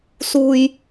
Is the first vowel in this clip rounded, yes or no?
yes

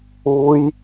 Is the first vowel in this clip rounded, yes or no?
yes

